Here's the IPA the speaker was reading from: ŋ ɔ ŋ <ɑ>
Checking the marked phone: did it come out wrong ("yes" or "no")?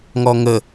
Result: yes